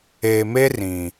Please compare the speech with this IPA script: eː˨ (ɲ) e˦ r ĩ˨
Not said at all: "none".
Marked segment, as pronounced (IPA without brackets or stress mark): m